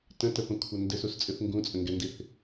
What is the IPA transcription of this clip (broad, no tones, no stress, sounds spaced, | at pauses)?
t ə̃ t ə p ə̃ kʷʰ ɘ n d ɘ s u s t͡sʼ ɨ θ ŋ ɡ ũ t͡sʼ ə̃ ŋ ɡ ɛ n d i θ